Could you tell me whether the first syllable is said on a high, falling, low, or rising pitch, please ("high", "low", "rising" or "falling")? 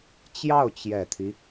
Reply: falling